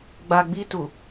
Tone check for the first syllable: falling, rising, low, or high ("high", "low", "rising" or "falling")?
low